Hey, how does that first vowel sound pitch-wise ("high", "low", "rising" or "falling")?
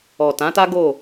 low